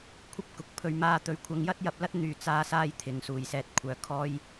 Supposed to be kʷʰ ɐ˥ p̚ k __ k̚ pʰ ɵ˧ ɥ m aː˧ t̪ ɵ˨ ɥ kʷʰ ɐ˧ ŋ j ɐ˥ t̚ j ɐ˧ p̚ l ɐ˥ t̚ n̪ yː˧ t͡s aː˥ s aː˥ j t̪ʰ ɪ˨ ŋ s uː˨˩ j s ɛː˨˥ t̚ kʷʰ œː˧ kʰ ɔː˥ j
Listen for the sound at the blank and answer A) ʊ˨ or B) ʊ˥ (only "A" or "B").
A